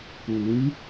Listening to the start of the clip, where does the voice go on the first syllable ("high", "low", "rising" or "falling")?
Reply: rising